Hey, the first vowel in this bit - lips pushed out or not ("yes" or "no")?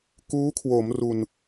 yes